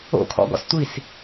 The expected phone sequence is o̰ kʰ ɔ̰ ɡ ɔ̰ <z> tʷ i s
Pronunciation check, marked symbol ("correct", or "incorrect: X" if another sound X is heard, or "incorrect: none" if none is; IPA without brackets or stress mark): incorrect: s